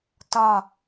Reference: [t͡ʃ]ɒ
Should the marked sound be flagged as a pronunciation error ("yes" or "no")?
yes